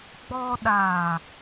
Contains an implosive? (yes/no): yes